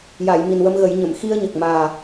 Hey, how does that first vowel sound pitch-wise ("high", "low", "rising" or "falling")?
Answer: low